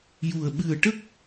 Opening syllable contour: low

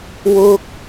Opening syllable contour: high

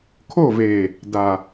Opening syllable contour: falling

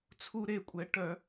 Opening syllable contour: high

